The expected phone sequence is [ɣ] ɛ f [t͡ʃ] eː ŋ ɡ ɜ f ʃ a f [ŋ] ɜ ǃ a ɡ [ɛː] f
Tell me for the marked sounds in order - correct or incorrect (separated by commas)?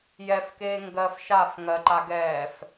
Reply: incorrect, incorrect, correct, correct